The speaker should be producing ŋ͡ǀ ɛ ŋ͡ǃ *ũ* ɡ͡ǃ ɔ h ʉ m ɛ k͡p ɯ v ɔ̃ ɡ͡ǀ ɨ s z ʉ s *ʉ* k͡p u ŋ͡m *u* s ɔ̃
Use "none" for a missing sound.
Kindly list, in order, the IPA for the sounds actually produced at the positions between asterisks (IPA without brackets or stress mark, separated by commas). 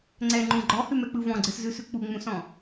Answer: ũ, ʉ, ũ